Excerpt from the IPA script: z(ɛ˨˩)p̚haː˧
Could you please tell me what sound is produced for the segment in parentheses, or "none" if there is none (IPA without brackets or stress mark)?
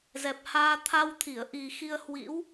ɛ˨˩